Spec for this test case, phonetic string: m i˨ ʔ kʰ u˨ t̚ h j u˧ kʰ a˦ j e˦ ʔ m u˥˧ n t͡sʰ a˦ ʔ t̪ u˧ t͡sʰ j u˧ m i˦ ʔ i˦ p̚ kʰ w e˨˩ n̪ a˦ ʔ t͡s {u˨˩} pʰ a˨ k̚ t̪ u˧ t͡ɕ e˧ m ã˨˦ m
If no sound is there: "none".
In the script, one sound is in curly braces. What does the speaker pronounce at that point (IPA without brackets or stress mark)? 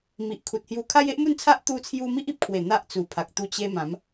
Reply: u˨˩